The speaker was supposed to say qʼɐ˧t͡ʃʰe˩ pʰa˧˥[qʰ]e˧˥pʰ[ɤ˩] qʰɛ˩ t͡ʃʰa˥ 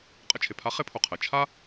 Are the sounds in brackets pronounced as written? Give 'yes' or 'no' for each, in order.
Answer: no, no

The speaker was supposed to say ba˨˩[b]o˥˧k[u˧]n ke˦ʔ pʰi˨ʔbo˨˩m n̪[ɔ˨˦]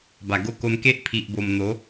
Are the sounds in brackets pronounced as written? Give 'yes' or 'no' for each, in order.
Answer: no, no, no

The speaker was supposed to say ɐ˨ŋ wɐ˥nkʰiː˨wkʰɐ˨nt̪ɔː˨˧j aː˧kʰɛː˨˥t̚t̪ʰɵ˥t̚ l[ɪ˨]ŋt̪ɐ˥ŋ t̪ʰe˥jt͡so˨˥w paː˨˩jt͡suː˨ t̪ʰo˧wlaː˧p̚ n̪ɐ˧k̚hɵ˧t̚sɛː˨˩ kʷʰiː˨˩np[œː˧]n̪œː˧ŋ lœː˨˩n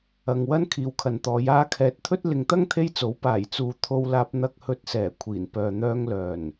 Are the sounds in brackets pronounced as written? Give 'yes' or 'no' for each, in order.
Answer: yes, no

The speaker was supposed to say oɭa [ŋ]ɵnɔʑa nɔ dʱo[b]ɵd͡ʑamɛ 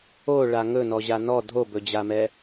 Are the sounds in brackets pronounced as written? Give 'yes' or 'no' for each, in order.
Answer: yes, yes

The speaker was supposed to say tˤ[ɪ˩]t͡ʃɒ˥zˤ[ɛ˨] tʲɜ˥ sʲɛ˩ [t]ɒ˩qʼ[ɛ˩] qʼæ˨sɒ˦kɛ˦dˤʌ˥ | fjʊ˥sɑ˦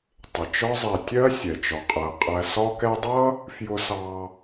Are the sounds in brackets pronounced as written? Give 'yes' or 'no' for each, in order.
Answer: yes, yes, no, no

